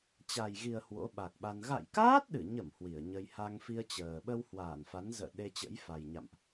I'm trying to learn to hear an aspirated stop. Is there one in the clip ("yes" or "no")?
no